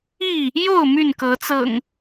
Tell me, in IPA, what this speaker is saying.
i˥˨ | j o˥˨ ʊ̯ m y˥˨ n k ɤ˨˦ t͡s ɤ̰˨˩ ŋ

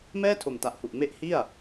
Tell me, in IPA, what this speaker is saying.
m ɛː˥˩ tʰ o˨˩ m t a˨˩ ʔ h u˨˩ ʔ m e˦˥ ʔ h i˥˩ a̯

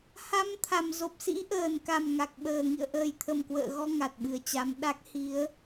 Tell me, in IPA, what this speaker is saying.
h a˨˦ m t̪ʰ a˨˩ m z o˨˩ p̚ s ḭ˧˥ ʔ əː˨˩ n k a˨˩ m ŋ a˨˩ k̚ ɓ əː˨˩ ŋ ḭ˧˨ ə̯ ʔ əː˨˩ j t̪ʰ ə˨˩ m k w ə̰ː˧˨ ɣ ɔ˧ ŋ a˨˩ t̚ ɓ ɨ˨˩ ə̯ t͡ɕ a˨˦ m ɗ a˦˥ k̚ h i˨˦ ə̯

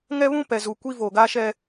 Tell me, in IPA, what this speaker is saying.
ŋ ɛ˦ β ũ˦ p ɛ˨ z u˨ kʷ i˦ v o˨ ɡ a˦ ʃ ɛ˦

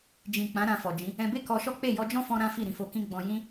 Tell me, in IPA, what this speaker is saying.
d͡ʒ ĩ˨ k͡p ã˨˦ ɾ ã˧ f ɔ˨ d͡ʒ ĩ˨˦ | ɛ̃˧ b e˦ k ɔ˧ ʃ ɔ˦ k͡p e˦˨ j ɔ˧ d͡ʒ ɔ̃˦ f ɔ̃˦ ɾ ã˦ f i˦˨ ɾ ĩ˨˦ f o˧ k ĩ˦ ɡ͡b ɔ̃˧ j ĩ˦

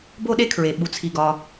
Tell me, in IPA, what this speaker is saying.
b o˥ ɗ e˥ kʰ ɹ e˩ ɓ u˩ t͡sʰ i˩ ɡ ɒ˩

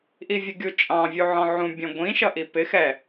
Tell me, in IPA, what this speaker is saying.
ʔ i vʲ ə ɡʲ u t͡ʃʼ ɑ̃ vʲ u ʕ ɔ̃ ʕ ũ bʲ ɔ̃ ɡʷ ĩ ʃ ʌ ʔ i p ɪ x ɛ

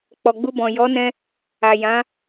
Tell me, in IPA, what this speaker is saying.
k͡p ɔ˨ ɡ͡b u˧ b ɔ̃˨ j ɔ˨˦ n ɛ̃˧ | a˨ j ã˨˦

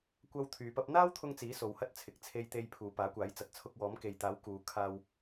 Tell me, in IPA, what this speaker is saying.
kʷ ɐ˥ w t̪ʰ yː˨ p ɐ˧ p̚ n̪ aː˥ w t̪ʰ ʊ˧ ŋ t͡s iː˨˥ s o˨˧ w h ɐ˥ t̚ t͡sʰ ɪ˨ k̚ t͡sʰ e˧ j t̪ e˧ j pʰ uː˨ p aː˨˥ kʷ aː˨˥ j t͡s ɐ˨ t̚ t͡sʰ ʊ˧ k̚ w ɔː˨˥ m k e˨ j t̪ aː˨˥ w k uː˨˧ kʰ aː˧ w

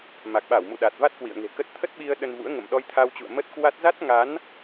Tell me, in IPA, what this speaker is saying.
m a˨˩ k̚ ɓ a˧˩ w m ṵ˧˨ ɗ a˨˩ t̚ v a˦˥ t̚ k w ḭ˧˨ ə̯ ŋ e̤˨˩ k ə˦˥ t̚ t̪ʰ ə˦˥ t̚ ɓ i˧ ə̯ ɗ ə˧ n v ṵ˧˥ ə̯ ŋ ə̰˧˨ m ɗ ɔ˧ j t̪ʰ a˧ w t͡ɕ ṵ˧˨ ə̯ m ə˦˥ t̚ k w a˦˥ t̚ z a˦˥ t̚ ŋ a˨˦ n

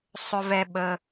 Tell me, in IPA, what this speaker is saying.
sˤ ʏ˧ v ɛ˧ ɓ ə˧

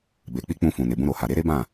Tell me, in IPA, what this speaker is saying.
b e˨ k͡p i˧ k͡p ũ˧ f ũ˨ n e˨ b ũ˧ ɾ o˨ h a˨ ɾ e˨˦ ɾ e˦ b ã˦˨

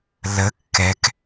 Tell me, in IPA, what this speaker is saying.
l ə kː ɛ k

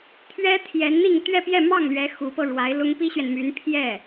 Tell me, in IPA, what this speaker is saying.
t̪ʰ ɥ ɛ˥ t̪ʰ j ɛ˧˥ n n̪ i˥˧ ŋ t̪ ɥ ɛ˥˧ p j ɛ˥˧ m ɑ˥˩ ŋ l ɥ ɛ˧˥ x u˧˥ p ɤ˧ ɻ w a˧˥ ɪ̯ l ʊ˥ ŋ p i˥ ɕ ɥ ɛ˨ n m y˧˥ n pʰ j ɛ˥˩

